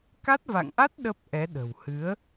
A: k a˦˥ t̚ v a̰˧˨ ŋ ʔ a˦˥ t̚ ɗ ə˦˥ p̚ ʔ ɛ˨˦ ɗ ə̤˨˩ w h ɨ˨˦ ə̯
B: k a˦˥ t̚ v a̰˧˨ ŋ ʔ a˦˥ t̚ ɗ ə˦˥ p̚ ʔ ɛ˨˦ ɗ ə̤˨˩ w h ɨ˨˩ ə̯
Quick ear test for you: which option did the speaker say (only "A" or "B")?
A